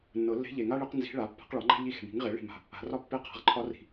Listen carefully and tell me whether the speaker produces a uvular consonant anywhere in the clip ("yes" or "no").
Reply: yes